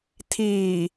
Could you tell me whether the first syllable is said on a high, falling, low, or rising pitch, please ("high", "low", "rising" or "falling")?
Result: low